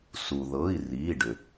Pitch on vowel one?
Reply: low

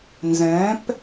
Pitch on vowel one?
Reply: rising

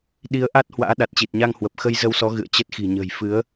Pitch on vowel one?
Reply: rising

